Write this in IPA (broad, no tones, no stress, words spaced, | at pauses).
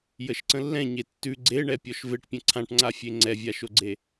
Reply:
jəʃǀə̃lːɛ̃ ɲetːʉ ɡ͡ǀeɳɛ pʲɔʃveʈpʲə̃ ǀʰãʈŋ͡ǀafʲe ŋ͡ǀɛvʲaʃoɡ͡ǀe